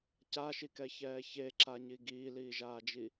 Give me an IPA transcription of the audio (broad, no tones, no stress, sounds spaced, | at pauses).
c a ʃ i k ɛ ç ɛː ç e ǁ a ɲ i ɡ iː l iː ʒ aː d͡ʒ i